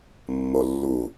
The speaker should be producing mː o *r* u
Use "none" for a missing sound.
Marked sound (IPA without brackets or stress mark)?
lː